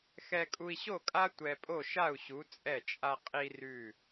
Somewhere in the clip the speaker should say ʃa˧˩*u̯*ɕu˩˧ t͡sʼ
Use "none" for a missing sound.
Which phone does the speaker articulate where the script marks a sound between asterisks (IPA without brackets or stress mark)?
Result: u̯